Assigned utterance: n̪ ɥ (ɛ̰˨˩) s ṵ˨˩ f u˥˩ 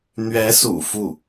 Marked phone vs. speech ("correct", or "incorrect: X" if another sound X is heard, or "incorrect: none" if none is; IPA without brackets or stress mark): incorrect: ɛ˧˥